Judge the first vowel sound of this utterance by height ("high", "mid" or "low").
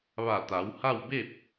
low